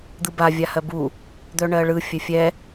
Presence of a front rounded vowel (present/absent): present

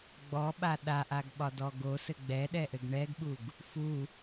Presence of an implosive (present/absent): present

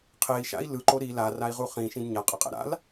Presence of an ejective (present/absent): present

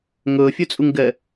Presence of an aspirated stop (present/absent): absent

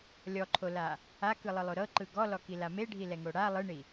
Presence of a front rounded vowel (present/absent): absent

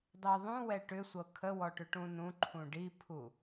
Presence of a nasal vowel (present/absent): present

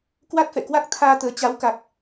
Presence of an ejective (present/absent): absent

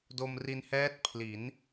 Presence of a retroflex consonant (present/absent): absent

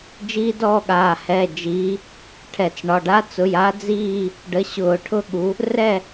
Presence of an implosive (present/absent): present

